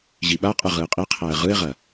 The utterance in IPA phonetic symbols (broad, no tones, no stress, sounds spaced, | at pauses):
ʑ i ɓ a qʼ ɯ ʁ ɯ ɪ̯ qʼ i qʰ æ ə̯ ʁ ɯ ɪ̯ ʁ ɐ